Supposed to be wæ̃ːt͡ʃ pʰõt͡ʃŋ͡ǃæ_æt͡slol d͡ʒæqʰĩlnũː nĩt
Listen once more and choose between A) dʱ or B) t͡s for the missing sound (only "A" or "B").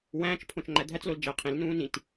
A